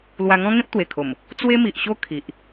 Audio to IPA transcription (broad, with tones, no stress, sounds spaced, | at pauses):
l w a˧ ŋ ɔ̃˦ ŋ ẽ˦ p̚ t̪ w e˨˩ kʰ o˨˩ m | t͡s w e˦ m i˨ ʔ ɕ o˦ kʰ i˨ ʔ